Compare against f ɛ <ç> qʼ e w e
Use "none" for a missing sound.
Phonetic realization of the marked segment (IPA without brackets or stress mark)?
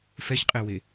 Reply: ç